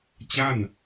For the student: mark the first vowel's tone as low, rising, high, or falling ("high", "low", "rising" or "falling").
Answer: falling